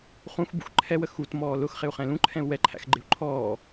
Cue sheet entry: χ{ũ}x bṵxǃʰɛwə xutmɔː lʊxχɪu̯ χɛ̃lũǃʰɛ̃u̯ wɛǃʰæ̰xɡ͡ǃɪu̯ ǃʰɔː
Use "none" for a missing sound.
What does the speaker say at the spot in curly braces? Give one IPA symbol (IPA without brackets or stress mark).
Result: ũ